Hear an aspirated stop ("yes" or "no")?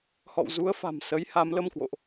no